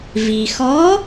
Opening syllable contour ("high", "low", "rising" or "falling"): low